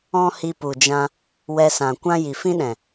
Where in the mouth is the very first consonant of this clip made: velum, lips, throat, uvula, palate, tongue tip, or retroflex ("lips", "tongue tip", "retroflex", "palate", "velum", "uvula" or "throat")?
throat